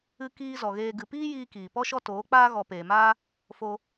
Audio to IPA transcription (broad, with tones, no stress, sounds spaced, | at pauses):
ɨ˧ k iː˦ z ɔ˨ ɣ eː˧ ɡ ɨ˨ p iː˦ j iː˧ k iː˨ p ɔ˦ ʃ ɔ˦ t oː˨˦ k͡p aː˦ ɣ ɔ˨ p eː˨ m aː˦ | f o˧